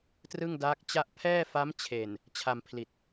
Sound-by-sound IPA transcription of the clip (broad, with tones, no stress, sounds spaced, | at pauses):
t r ɯ˥˩ ŋ d aː˦˥ k̚ t͡ɕ a˥˩ ʔ pʰ ɛː˥˩ f a˦˥ m t͡ɕʰ e˨˩ n | t͡ɕʰ a˧ m pʰ l i˨˩ t̚